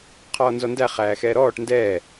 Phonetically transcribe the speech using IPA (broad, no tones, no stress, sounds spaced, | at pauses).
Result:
qʰ ɔː n z ɔ n d æ χ æː x ɛː ɾ ɔː ʈ n d ɛː